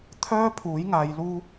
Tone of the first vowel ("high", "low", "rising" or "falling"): high